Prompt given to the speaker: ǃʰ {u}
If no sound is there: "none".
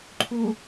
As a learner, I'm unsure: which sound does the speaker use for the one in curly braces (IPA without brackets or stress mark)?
u